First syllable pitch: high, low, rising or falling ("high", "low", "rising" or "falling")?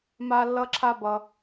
high